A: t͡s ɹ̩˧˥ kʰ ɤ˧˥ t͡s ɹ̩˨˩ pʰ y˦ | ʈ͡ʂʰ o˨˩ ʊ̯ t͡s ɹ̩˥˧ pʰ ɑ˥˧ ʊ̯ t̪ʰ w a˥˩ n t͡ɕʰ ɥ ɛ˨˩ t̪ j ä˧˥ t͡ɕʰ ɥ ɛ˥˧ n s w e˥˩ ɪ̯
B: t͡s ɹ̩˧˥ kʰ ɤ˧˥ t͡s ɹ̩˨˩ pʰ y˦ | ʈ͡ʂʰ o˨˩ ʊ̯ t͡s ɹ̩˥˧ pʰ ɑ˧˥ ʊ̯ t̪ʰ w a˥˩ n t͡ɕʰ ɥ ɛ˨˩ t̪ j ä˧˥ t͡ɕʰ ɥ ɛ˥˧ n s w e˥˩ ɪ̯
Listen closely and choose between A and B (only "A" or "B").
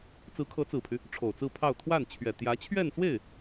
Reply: A